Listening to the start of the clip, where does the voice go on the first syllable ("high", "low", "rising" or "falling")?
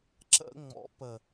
high